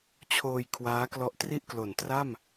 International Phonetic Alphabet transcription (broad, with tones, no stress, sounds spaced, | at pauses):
t͡ɕʰ oː˧ j kʰ w aː˦˥ k l ɔ˦˥ ʔ t r i˥˩ ʔ k l o˨˩ n t r a˥˩ m